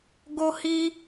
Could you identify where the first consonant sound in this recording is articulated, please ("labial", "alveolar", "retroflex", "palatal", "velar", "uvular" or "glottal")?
velar